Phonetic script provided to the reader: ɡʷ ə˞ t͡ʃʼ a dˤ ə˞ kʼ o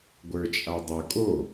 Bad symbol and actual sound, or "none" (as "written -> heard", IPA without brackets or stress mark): none